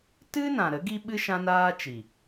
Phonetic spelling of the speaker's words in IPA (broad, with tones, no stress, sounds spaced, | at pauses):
t ɨ˦ n ã˨ ɾ ə˨˦ ɡ i˦ ɓ ɨ˦ ʃ ã˦ n aː˦ t͡ʃ i˨